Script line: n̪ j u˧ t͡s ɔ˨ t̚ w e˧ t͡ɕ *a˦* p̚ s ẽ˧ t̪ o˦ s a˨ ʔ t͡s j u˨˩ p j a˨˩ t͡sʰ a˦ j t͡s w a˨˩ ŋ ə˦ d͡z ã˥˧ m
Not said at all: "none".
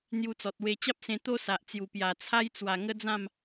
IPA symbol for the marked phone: a˦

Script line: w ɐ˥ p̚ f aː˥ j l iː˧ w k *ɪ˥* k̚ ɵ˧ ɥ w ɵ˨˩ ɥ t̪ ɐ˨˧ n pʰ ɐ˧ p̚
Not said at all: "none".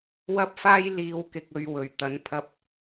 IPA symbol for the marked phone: ɪ˧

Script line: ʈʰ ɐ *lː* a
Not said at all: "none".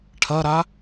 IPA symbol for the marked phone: ɾ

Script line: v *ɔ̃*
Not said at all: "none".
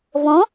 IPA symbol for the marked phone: ɔ̃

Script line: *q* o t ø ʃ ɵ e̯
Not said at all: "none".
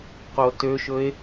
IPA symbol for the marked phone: q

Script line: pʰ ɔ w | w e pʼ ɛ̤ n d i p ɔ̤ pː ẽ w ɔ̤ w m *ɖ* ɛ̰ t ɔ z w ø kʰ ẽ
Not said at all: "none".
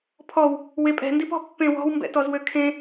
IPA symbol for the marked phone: b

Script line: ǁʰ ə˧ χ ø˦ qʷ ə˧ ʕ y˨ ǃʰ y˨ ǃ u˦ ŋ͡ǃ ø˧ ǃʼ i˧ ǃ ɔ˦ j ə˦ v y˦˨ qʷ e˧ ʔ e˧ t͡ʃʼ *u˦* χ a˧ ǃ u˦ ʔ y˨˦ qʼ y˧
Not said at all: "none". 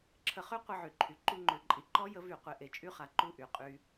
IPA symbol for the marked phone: y˦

